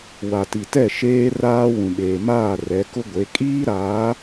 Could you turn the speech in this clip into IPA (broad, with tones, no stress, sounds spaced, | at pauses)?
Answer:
w a˨ t i˨ t ɛ˦˨ ʃ eː˦ r aː˦ w ũ˨ ɓ eː˨ m aː˦˨ r ɛ˨˦ k ʊ˦ ɡʷ e˨˦ kʼ iː˦ ɾ aː˨˦